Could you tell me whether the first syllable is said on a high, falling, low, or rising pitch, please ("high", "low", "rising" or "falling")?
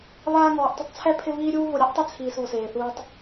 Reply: high